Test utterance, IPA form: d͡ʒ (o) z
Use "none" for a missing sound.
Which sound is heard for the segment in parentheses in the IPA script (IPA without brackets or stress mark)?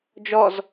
ɔ